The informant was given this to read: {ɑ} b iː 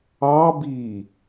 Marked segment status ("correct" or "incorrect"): correct